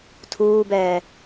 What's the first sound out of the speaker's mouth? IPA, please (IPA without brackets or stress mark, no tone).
tʰ